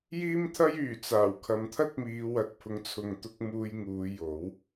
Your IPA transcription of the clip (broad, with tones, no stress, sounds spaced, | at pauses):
j iː˥ m t̪ʰ ɐ˥ j yː˨˩ t͡s aː˨˩ w kʰ ɐ˨ m t̪ʰ ɐ˥ t̚ m iː˨˧ w ɐ˨ t̚ pʰ ʊ˨˥ ŋ t͡sʰ ʊ˨ ŋ t̪ ʊ˧ k̚ m uː˧ j ŋ uː˨˧ j o˨˥ w